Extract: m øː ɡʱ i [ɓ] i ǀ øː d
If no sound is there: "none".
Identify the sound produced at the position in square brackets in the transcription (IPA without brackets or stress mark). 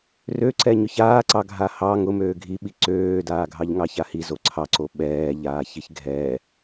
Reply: ɓ